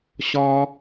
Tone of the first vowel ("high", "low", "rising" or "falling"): high